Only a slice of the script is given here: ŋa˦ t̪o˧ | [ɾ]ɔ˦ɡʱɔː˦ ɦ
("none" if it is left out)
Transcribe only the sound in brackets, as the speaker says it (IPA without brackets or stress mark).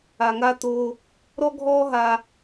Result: ɾ